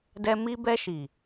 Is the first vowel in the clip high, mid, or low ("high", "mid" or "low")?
mid